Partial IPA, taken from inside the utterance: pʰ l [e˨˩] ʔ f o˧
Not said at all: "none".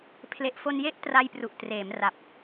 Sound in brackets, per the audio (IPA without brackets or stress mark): e˨˩